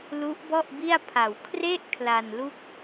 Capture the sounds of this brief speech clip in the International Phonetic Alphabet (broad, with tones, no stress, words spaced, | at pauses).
lu˦˥ʔbɔ˥˩ʔbi˥˩a̯pʰa˨˩w kʰre˥˩ʔ kʰla˧nlu˥˩k̚